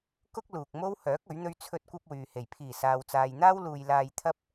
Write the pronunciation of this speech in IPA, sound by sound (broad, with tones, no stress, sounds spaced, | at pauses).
k ʊ˥ k̚ l uː˨ k̚ m o˥ w h œː˨˥ k̚ ɵ˨˥ ɥ n̪ ɵ˥ ɥ t͡sʰ ɵ˥ t̚ kʷ ɐ˥ p̚ w yː˨ h e˨˩ j pʰ iː˨˩ s aː˨ w t͡s aː˨ j n̪ aː˥ w l uː˧ j l aː˧ j t̪ʰ ɐ˥ p̚